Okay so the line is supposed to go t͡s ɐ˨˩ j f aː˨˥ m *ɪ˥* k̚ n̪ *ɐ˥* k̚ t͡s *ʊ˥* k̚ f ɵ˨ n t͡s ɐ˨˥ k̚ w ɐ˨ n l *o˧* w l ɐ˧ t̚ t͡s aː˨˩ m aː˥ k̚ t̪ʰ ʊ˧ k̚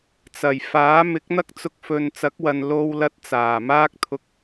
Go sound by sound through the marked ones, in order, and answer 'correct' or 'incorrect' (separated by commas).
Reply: incorrect, correct, incorrect, correct